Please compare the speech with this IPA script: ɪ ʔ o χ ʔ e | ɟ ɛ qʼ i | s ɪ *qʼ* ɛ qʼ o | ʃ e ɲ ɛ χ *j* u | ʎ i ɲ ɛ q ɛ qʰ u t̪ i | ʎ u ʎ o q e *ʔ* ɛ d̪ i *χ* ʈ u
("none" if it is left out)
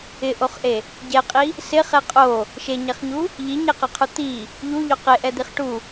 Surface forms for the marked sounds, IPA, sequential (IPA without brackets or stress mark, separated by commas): χ, ɲ, ʔ, χ